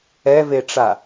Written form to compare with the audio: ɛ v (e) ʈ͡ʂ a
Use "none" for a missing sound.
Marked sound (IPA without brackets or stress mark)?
e